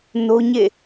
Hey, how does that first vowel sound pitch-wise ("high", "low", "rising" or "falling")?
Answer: high